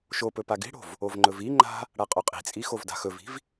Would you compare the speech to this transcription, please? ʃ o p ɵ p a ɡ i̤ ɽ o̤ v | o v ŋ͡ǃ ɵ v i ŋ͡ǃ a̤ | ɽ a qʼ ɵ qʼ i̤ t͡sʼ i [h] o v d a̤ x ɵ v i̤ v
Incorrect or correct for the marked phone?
incorrect: x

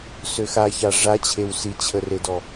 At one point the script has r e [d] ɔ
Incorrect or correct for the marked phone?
correct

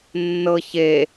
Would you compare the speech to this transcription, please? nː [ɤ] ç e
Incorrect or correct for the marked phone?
correct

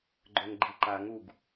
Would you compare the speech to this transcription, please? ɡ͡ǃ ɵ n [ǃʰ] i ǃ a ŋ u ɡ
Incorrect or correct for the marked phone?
incorrect: ɡ͡ǃ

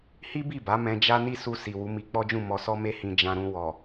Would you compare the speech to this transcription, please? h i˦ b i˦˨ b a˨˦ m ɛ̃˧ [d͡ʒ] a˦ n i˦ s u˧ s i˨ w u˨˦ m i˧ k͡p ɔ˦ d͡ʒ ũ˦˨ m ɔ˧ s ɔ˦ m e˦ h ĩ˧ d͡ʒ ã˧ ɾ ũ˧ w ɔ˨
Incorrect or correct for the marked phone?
correct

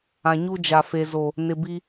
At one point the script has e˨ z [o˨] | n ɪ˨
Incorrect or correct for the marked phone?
correct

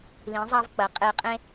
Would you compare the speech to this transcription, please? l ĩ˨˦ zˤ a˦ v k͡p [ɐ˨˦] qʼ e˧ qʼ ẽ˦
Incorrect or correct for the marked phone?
correct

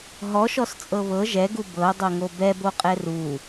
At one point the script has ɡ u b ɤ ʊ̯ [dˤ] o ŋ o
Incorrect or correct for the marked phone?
correct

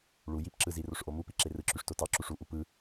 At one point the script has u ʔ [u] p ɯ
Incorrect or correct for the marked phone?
correct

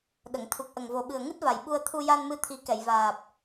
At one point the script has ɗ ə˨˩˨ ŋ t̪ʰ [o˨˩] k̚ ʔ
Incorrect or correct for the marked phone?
incorrect: u˨˩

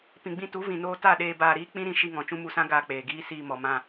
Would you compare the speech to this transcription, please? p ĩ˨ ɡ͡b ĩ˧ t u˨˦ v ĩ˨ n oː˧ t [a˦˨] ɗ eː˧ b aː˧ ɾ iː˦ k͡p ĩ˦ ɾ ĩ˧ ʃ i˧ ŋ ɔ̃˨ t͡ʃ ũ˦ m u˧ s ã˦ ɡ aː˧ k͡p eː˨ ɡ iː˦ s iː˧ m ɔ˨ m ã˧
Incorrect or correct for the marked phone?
correct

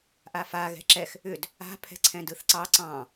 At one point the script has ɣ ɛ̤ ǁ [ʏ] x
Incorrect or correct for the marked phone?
incorrect: ɛ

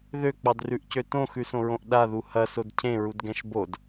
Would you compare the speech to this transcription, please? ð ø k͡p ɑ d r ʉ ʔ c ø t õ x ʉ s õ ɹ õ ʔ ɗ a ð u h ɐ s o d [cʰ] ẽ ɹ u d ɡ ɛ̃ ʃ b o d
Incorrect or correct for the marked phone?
correct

